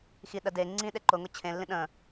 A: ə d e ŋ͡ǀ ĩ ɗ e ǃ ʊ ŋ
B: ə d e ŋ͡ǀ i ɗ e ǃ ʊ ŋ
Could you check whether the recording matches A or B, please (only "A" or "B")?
A